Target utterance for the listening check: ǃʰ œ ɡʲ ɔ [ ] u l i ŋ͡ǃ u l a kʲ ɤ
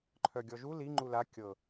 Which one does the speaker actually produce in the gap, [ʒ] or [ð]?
ʒ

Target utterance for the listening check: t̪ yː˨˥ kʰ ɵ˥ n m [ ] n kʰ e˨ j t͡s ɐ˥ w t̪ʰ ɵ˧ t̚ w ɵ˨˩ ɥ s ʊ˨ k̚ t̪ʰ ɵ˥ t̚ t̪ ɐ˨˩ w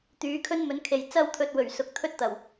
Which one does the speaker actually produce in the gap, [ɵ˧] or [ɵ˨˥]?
ɵ˨˥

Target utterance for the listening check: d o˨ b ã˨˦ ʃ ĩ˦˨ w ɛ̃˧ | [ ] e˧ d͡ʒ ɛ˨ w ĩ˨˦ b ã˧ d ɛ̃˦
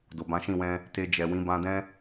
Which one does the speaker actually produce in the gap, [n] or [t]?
t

